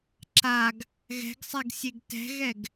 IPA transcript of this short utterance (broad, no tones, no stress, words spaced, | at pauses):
ǁaɡ | ɣɛ̤ɡsˤɛɡ sʲeɡtɛ̤ɣɛɡ